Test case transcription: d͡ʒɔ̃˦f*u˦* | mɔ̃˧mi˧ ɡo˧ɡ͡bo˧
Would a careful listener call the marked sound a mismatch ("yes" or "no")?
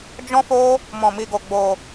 yes